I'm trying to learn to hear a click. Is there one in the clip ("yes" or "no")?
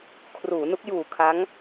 no